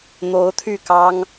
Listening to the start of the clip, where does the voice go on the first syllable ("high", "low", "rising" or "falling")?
rising